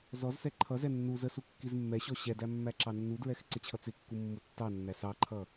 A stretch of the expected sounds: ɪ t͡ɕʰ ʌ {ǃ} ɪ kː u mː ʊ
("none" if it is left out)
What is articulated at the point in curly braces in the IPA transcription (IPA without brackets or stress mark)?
t͡s